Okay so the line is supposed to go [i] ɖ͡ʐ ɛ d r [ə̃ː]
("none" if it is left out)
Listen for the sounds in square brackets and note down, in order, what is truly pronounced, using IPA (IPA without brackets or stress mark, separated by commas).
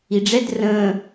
i, ə̃ː